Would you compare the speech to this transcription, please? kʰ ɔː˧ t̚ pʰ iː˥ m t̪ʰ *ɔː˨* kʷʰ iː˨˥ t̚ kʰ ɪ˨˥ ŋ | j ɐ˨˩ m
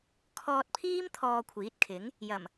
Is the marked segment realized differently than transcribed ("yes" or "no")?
yes